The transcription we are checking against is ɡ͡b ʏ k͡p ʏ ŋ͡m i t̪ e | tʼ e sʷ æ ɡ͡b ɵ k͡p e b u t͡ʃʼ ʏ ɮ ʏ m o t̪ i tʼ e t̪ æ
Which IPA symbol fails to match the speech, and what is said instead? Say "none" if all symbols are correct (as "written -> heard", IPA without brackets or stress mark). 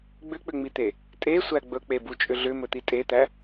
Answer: o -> ɵ